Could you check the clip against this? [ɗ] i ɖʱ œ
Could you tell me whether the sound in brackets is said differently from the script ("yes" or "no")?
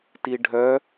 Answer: yes